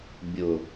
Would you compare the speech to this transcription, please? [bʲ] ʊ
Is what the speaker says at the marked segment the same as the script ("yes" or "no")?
yes